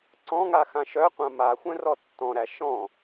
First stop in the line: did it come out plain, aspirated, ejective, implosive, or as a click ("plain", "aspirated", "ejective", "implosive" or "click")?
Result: click